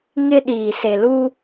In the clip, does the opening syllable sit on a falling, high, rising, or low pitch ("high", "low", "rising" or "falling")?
high